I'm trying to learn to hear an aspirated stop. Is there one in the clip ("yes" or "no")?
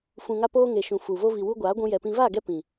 no